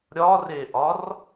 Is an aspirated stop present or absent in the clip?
absent